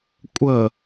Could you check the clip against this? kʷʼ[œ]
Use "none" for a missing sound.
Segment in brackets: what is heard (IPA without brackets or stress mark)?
ə